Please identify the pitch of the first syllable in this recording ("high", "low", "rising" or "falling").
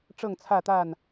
falling